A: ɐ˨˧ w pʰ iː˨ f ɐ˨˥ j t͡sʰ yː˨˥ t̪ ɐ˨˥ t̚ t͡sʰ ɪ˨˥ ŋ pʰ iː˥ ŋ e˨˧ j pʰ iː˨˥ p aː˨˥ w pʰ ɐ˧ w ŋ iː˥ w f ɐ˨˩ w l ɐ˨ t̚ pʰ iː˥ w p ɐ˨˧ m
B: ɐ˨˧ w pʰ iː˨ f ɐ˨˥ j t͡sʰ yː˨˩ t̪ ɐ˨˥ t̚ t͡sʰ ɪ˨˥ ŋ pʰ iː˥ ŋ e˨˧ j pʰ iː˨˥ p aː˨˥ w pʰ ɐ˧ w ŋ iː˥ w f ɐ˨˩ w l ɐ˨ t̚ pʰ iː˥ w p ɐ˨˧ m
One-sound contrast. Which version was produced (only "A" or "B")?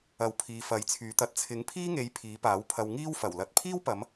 A